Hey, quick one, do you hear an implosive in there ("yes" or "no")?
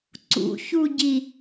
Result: no